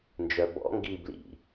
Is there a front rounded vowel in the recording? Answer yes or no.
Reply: yes